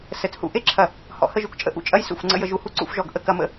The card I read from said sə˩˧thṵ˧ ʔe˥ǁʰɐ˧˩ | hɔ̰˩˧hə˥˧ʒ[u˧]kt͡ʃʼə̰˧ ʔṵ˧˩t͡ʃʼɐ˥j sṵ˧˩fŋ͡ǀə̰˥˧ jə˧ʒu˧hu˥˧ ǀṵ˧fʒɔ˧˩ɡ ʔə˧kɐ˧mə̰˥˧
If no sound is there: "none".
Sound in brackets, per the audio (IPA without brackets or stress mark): u˧˩